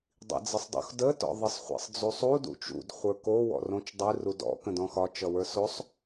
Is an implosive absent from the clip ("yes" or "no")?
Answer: yes